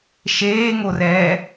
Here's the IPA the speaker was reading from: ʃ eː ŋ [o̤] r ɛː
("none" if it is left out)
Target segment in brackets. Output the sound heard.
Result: o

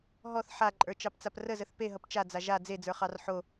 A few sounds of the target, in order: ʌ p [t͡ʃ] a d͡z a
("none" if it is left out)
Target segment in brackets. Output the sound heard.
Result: t͡ʃ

